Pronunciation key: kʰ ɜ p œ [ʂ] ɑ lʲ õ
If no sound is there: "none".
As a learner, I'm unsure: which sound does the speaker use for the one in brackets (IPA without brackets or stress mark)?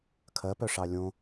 ʂ